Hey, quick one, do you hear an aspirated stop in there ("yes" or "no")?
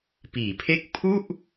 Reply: yes